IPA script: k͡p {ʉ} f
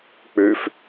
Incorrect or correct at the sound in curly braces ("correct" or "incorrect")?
correct